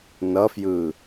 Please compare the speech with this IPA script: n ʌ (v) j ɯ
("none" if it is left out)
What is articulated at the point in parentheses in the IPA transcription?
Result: f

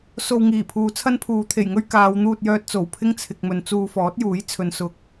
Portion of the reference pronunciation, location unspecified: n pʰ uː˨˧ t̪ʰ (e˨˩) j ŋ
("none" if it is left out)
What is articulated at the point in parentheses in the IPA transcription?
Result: e˨˩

